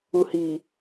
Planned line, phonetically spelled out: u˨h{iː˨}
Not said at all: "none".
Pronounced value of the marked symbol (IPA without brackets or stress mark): iː˨